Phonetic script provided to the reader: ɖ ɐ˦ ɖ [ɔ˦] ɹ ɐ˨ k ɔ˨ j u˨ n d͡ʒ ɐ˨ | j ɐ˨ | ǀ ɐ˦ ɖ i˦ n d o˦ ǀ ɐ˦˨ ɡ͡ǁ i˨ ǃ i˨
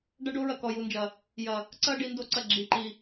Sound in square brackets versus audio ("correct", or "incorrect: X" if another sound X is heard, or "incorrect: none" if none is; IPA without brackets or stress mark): incorrect: o˦